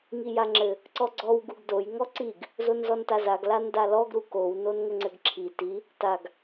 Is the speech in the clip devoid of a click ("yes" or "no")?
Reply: no